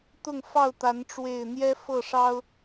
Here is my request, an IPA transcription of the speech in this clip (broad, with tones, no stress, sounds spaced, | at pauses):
t̪ ʊ˥˨ ŋ f ɑ˥˨ ʊ̯ t̪ a˨˦ n ʈ͡ʂ w e˥˨ ɪ̯ n̪ j ɛ˦ f ɤ˥˨ ʂ ɑ˦ ʊ̯